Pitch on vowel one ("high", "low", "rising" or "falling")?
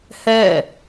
falling